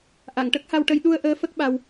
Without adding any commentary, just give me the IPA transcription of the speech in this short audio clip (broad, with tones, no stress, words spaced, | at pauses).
ʔa˨˩˨ŋʈə˦˥k̚ha˧wʈə˧j ɗu˧ə̯ʔəː˧˥ fə˦˥k̚ɓa˧w